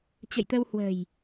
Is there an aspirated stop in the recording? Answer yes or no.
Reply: no